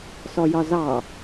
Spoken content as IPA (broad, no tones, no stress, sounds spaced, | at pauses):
s ɔ j ɒ z ɑ